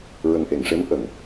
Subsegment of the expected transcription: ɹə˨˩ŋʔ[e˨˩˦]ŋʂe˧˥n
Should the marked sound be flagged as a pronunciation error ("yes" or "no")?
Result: yes